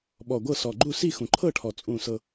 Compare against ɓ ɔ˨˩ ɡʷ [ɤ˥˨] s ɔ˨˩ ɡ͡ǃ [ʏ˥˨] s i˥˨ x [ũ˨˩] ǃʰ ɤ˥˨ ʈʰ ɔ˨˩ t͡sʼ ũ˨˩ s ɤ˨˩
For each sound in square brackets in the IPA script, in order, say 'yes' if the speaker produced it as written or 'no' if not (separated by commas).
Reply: yes, no, yes